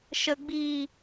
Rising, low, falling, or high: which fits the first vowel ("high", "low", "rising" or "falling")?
low